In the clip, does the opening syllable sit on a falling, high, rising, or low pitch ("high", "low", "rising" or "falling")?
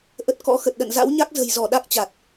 low